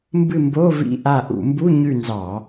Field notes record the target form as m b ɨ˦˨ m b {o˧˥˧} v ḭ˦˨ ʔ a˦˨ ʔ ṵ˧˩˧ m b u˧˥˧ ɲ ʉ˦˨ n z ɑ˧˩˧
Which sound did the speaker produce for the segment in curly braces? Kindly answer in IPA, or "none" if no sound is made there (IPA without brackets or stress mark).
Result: o˧˥˧